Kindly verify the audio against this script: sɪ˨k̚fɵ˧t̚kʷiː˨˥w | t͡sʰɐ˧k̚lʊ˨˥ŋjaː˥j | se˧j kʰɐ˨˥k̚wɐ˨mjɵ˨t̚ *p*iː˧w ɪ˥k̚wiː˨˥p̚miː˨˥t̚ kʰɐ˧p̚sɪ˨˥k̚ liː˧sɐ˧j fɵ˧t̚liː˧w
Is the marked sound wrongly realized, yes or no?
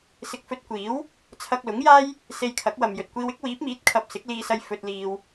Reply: yes